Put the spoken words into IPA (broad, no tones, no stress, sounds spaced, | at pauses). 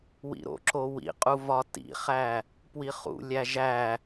w ḭ ɾ o̰ ǁ o w ḭ qʼ u v ɒ t ḭ χ æ | p w i χ ṵ lʲ æ ʒ æ